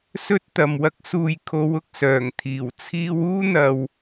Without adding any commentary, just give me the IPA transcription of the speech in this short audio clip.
s ɵ˥ t̚ t̪ ɐ˨ m w ɐ˥ k̚ s uː˧ j kʰ o˨˧ w ʊ˨ k̚ s œː˨˩ ŋ t̪ʰ iː˨˩ w t͡sʰ iː˧ w uː˥ n̪ ɐ˨ w

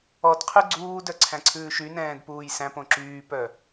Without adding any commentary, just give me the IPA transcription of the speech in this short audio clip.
ɔ d qʰ ʉ ɡ͡ǀ uː d œ ǀʰ æ̃ ǀʰ ʉː ʃ y n ɛ̃ː d p uː j s æ̃ p õ ǁ yː p œ

